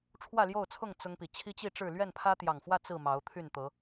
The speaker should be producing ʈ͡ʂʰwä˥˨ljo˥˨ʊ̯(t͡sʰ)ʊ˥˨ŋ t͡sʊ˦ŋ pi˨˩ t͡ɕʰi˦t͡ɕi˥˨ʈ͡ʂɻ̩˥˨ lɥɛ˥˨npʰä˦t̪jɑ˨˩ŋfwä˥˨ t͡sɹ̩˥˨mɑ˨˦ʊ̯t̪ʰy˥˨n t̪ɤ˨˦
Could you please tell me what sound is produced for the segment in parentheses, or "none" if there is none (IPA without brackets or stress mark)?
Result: t͡sʰ